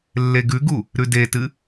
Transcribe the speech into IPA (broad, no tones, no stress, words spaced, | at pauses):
lːeɡʉɡu | ɾʉdetɨ